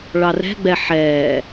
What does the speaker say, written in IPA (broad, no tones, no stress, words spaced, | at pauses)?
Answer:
ɭɑrɛ̤ɡ͡bɛ ħɛː